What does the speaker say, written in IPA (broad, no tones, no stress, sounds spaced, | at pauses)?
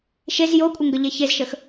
ʃ e z j o kʷʼ ɘ ŋ ɡ ə ʎ e ç e z ʃ ə x